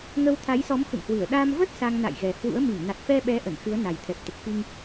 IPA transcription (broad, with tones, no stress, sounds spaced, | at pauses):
ŋ ə˧ w t̪ʰ a˨˦ j s ɔ˨˦ m x ṵ˧˨ ŋ h w ɨ˧˩ ə̯ ɗ a˧ m v ə˦˥ t̚ s a˧ ŋ n a̰˧˨ j ɣ ɛ˨˩ h w ṵ˧˥ ə̯ m i˧˩ ŋ n a˨˩ t̚ f ɛ˧ ɓ ɛ˨˦ ʔ ə˧˩ n x ɨ˨˦ ə̯ n a˨˩ j t̪ʰ ɛ˨˩ p̚ t̪ ə˨˩ p̚ f i˧ ŋ